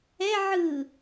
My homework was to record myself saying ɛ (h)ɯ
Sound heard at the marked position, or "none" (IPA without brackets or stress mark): ʕ